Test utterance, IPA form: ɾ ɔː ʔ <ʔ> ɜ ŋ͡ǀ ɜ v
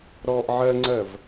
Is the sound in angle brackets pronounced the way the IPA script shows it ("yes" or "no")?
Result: no